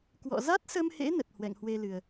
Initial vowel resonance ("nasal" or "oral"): oral